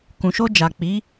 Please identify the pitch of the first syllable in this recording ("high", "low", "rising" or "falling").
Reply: low